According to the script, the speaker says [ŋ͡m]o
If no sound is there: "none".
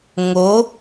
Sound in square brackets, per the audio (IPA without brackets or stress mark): ŋ